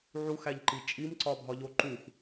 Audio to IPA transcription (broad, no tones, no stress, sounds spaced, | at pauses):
ʕ u x æ ʎ ǃ i t͡ʃʼ i m ǀ ɒ bʱ ɒ ʎ o ǃ u x